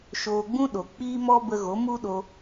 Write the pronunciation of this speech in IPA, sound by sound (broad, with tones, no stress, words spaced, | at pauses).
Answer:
ʃoː˧ɡ͡bũ˦ ɗo˨ k͡piː˦mɔ˦bə˧ɣo˨˦ mu˦ɗo˧